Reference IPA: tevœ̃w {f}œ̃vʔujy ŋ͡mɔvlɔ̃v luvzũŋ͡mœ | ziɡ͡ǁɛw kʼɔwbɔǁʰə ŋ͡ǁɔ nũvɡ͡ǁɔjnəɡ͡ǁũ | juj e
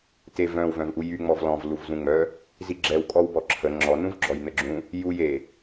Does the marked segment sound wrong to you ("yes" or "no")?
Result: yes